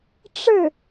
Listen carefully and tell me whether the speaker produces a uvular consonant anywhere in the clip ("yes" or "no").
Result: no